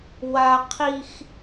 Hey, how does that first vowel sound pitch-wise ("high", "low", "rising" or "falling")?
high